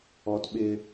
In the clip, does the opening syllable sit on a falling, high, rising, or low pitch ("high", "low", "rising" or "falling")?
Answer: low